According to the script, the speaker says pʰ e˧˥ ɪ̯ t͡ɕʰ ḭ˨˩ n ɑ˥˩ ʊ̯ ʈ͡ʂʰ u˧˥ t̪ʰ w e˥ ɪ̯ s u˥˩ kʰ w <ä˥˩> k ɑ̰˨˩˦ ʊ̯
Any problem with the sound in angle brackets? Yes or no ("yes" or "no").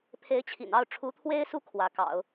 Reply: yes